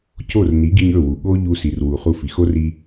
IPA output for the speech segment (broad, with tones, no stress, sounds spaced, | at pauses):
c o˦˨ r n i˨˦ ɡ i˧ ɲ ɵ˦˨ w u˨ ɠ o˦ ʎ u˧ s i˨ r w u˨ χ u˧ f i˨ x o˦ r i˧